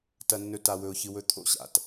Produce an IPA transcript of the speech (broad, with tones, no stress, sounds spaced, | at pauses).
t ɐ˦ nː ɵ˦ t a˦ w ɵ˦ ʊ̯ ç ɨ˦ w ɵ˦ t̪ʰ o̰˦˨ ɕ a̰˨ t